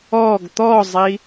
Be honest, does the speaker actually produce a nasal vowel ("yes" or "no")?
no